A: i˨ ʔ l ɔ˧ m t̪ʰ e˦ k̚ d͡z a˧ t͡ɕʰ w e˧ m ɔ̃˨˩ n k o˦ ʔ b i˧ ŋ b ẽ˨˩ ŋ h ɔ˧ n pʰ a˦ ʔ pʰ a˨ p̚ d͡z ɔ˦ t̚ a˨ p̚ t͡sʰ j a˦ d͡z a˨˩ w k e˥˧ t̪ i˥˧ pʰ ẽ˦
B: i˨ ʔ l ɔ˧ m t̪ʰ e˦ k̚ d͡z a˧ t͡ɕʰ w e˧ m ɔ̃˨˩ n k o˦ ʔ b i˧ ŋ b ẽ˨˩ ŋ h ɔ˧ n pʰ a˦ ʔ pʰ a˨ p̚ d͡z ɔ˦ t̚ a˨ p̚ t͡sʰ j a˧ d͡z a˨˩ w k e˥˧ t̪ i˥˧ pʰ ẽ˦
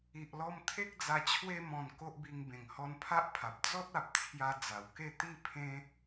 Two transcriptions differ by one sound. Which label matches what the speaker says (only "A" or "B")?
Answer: B